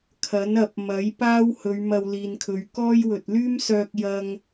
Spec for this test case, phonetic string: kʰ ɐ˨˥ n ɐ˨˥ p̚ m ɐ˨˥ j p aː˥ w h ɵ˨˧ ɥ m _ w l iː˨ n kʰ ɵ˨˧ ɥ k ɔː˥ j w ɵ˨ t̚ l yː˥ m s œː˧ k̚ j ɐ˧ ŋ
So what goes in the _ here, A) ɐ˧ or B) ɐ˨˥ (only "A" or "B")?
A